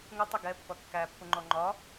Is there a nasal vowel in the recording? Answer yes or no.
no